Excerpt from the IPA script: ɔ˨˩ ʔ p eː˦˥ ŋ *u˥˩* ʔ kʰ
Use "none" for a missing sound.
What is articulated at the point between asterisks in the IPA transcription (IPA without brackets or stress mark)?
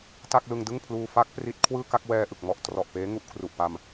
u˥˩